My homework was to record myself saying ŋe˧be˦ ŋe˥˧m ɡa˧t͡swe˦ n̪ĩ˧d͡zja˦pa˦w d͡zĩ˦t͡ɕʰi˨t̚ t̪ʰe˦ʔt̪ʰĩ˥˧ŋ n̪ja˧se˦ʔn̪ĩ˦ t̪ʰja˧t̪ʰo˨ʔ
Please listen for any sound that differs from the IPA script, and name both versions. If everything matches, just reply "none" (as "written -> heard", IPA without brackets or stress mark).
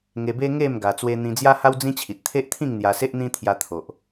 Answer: p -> h